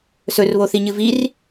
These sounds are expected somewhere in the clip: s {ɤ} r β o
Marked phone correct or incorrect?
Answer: incorrect